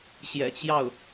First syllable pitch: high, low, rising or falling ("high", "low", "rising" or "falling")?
low